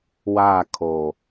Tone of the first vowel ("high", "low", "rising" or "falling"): falling